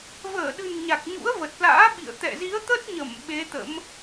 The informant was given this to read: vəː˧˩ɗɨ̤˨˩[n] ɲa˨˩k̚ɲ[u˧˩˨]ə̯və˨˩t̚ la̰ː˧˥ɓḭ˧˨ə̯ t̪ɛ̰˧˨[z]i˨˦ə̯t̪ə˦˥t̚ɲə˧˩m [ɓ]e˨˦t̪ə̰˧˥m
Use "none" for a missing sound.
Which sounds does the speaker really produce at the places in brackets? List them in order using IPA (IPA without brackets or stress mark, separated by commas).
n, ṵ˧˥, z, ɓ